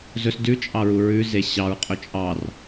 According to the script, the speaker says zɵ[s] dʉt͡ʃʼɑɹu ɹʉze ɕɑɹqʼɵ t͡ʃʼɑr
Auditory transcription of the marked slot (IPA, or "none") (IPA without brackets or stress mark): s